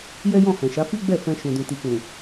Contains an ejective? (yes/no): no